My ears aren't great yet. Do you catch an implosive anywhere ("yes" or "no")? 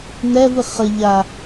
no